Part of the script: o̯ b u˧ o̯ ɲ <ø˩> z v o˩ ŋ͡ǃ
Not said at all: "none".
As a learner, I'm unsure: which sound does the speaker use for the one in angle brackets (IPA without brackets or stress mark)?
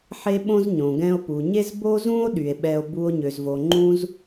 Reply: ø˩